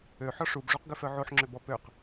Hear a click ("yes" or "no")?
yes